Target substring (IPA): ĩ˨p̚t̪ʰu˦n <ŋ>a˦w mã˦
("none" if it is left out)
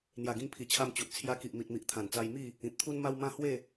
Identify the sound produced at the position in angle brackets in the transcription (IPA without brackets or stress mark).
m